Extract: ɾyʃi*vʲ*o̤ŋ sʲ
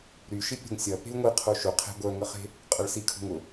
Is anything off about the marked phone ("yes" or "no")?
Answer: yes